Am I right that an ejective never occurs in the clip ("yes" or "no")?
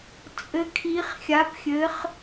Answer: no